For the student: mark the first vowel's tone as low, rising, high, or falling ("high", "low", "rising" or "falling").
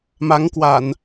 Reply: rising